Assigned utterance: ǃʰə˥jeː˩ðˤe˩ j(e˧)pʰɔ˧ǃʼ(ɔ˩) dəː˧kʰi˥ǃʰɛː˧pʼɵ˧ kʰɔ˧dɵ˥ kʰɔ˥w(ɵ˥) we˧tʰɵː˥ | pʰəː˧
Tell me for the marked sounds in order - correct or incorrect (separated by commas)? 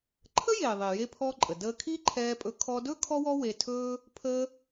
correct, incorrect, incorrect